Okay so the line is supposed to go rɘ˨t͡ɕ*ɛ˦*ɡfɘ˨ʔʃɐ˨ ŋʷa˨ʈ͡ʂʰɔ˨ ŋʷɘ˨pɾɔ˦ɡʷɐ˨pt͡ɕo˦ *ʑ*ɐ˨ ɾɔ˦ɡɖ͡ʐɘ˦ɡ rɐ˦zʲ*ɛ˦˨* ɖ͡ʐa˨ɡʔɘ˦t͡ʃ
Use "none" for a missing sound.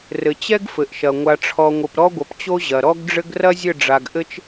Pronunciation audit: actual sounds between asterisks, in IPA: ɛ˦, ʑ, ɘ˦˨

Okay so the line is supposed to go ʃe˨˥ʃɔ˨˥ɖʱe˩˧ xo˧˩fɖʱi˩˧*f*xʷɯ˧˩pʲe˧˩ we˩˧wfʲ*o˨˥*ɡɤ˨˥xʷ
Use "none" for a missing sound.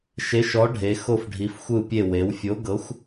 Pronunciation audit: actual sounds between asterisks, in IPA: f, o˨˥

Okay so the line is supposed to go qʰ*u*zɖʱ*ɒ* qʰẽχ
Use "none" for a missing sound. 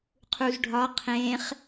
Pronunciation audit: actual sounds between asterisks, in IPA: u, ɒ

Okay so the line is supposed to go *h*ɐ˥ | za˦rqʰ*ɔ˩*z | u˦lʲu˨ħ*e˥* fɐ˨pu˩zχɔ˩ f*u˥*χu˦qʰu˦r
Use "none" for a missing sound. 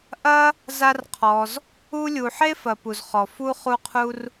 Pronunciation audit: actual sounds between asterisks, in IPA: ʔ, ɔ˨, e˥, u˥

